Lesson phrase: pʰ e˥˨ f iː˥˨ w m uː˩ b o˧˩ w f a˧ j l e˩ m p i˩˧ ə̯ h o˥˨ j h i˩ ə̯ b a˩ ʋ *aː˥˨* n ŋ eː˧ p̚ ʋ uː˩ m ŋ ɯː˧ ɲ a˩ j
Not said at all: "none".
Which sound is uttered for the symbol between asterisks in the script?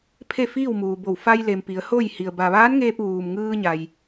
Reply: aː˧˥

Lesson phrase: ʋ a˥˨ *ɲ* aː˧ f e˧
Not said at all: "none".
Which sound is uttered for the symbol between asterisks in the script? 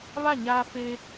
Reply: ɲ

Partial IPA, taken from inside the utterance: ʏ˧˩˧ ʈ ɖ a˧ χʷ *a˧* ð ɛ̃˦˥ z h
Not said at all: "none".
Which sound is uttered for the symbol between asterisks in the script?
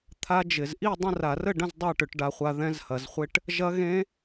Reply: a˧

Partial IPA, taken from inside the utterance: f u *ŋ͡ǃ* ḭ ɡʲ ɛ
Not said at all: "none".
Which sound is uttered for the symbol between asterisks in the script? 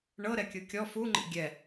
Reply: ŋ͡ǃ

